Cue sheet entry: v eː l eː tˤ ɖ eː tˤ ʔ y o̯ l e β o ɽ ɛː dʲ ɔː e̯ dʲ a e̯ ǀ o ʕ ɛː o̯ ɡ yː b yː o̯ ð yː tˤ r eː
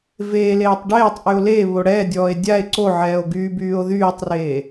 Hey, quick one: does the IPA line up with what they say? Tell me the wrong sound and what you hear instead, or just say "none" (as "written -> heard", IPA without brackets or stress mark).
none